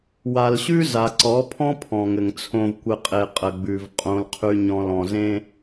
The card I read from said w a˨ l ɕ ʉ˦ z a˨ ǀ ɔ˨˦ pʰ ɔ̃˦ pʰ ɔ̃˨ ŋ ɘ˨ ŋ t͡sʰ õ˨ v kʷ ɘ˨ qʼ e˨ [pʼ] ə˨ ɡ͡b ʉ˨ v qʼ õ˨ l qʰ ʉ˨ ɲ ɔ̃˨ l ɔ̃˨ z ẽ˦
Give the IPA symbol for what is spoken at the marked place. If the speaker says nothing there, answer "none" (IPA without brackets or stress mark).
qʼ